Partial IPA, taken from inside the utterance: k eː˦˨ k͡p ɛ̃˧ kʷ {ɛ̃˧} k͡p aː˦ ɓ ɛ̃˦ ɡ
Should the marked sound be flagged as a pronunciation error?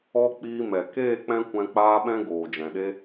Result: no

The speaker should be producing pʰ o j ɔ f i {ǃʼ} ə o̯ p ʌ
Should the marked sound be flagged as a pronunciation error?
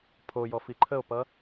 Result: yes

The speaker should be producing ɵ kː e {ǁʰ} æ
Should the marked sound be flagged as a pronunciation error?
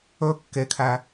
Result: yes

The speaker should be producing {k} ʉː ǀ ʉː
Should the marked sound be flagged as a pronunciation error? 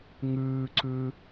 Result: yes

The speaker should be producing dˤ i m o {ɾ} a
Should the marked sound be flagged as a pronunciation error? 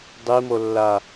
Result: yes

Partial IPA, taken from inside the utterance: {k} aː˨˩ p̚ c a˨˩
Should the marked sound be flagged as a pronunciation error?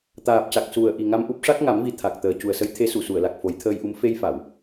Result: yes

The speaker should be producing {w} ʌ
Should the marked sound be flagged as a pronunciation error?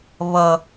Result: yes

